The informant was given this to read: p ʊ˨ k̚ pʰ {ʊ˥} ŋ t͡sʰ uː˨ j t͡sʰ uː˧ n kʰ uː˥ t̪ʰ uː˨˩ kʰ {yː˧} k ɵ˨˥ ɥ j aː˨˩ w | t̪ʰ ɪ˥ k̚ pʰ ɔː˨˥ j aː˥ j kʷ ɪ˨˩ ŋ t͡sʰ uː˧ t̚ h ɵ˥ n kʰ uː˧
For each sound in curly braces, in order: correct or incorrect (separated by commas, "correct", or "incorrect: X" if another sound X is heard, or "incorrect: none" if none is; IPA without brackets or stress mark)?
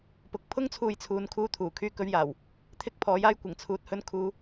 correct, correct